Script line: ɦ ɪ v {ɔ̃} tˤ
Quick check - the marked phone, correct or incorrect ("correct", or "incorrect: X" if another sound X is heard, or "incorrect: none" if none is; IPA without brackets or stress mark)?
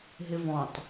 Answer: correct